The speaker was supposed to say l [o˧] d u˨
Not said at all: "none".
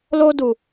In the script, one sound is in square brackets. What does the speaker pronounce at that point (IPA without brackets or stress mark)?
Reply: o˧